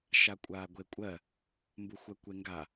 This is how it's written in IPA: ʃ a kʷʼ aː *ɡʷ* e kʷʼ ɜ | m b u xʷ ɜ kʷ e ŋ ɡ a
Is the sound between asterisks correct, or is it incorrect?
correct